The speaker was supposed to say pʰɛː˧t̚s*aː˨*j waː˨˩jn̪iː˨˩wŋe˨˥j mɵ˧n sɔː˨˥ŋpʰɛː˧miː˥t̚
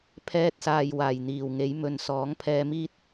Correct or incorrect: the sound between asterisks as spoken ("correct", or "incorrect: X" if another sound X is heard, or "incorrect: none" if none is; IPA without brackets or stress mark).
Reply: correct